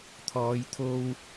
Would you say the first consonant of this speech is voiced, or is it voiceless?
voiceless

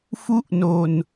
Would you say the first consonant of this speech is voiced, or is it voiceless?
voiceless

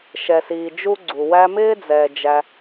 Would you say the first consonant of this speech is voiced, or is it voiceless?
voiceless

